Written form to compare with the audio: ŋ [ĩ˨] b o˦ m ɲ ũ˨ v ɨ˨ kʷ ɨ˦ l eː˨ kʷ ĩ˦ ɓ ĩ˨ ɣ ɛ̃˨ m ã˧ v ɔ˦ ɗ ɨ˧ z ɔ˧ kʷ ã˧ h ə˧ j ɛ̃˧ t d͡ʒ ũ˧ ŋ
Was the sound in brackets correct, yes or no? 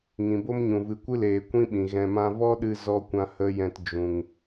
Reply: yes